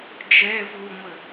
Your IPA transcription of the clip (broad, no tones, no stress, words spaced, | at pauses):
d͡ʒɛ vuŋʷə